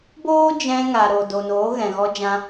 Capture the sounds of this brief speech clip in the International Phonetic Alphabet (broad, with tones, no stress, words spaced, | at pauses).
boː˦d͡ʒɛ̃˧ŋa˨ ɾo˨do˨ noː˨˦ɣɛ̃˨ɣɔ˧d͡ʒã˧